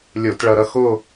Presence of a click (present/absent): absent